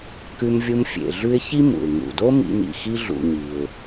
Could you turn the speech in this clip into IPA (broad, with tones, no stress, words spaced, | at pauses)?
kʉ˦m vʲu˦mfʲḛ˨ ɮʉ˦ɪ̯çi˥mṵ˩ɪ̯ ŋṵ˩do˥ mḭ˦m ḭ˩xi˥ɮṵ˨ɲi˩ʊ̯